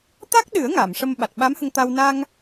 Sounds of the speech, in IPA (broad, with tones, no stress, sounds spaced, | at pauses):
t̪ a˦˥ k̚ ɗ ɨ˨˩˦ ə̯ ŋ a˨˩˨ m ʂ ə˧ m ɓ a˨˩ t̚ ɓ a˧˥ m h ə˧ ŋ t̪ a˧ w n a˧ ŋ